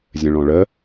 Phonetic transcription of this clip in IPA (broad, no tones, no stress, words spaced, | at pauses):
zʲə̃ɭɔ̃ɭə